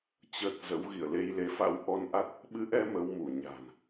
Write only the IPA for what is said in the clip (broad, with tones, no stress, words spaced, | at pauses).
t͡ɕə˨˩t̚ zə̰˧˥wɣḭ˧˨ə̯ le˧jle˨˦fa̰˧˥w ʔɔ˧nʔa˦˥t̚ | ɓɨ˨˦ʔɛ˧ mə˨˦wmu˧˩ ɲa̤˨˩n